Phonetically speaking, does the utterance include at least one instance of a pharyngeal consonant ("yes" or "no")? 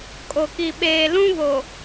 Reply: no